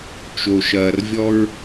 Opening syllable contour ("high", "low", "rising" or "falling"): low